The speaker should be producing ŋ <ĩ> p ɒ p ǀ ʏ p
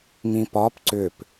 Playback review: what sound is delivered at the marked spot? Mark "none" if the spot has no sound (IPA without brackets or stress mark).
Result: ĩ